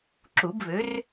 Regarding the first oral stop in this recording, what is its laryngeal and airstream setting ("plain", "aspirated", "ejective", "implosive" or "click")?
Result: click